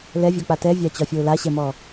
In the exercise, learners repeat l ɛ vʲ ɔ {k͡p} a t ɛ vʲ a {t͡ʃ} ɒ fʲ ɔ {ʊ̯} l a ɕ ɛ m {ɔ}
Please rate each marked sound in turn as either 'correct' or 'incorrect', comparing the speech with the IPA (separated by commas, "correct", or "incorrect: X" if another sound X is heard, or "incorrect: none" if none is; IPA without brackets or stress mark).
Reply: correct, incorrect: t͡ɕ, correct, correct